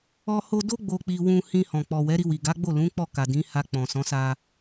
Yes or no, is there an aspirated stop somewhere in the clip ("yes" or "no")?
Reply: no